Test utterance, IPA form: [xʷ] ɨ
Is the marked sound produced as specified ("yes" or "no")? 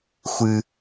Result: yes